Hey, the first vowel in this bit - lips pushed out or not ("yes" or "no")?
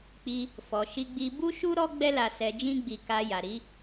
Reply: no